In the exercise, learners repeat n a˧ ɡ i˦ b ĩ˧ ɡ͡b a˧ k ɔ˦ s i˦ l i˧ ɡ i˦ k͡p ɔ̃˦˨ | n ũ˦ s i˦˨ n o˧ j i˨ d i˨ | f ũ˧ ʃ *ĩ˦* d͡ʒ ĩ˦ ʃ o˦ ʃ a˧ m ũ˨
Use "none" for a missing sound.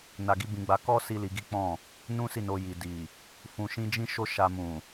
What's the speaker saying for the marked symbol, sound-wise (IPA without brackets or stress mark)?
ĩ˦